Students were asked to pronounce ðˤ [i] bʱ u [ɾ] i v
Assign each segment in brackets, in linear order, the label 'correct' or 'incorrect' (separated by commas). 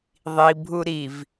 correct, correct